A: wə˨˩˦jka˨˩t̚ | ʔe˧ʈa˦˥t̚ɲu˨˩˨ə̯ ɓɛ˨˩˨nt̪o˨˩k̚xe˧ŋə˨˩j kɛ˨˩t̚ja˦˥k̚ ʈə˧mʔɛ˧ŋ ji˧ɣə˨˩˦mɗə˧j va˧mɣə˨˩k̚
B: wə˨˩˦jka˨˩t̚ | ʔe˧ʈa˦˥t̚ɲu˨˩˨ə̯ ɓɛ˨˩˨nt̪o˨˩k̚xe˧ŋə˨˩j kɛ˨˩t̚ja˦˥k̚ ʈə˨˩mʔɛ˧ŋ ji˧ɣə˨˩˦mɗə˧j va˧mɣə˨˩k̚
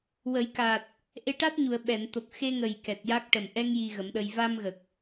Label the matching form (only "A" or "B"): B